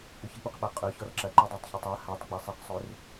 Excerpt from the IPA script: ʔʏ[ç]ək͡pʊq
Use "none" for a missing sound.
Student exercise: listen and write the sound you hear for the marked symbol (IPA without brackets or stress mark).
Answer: ç